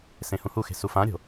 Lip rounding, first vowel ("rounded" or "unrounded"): unrounded